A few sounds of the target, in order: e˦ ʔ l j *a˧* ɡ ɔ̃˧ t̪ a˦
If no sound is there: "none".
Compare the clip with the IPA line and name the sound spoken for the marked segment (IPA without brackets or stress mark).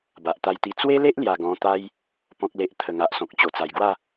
a˨˩